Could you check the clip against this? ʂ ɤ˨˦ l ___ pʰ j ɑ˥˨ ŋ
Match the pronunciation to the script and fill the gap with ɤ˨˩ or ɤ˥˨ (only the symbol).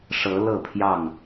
ɤ˥˨